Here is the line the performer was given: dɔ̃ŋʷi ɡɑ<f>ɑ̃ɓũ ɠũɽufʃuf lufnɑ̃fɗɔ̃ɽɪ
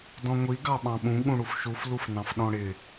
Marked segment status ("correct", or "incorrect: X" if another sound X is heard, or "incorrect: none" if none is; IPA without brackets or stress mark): incorrect: ɓ